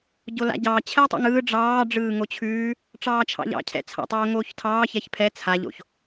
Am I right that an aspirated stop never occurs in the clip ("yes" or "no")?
no